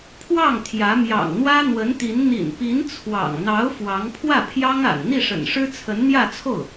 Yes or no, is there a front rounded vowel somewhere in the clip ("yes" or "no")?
no